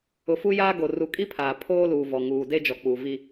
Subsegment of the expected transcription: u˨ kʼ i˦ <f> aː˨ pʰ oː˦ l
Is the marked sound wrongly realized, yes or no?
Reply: yes